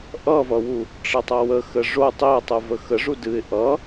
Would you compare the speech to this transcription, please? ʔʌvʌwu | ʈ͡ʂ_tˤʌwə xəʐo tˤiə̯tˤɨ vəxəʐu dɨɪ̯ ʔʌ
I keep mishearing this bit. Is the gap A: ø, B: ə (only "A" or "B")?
B